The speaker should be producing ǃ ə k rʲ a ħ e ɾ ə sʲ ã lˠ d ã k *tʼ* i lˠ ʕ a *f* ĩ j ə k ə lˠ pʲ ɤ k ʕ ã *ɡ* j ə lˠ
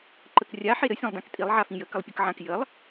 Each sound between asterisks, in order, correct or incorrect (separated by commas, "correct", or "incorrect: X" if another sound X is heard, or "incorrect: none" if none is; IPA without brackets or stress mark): correct, correct, incorrect: k